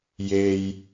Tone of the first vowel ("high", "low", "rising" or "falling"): low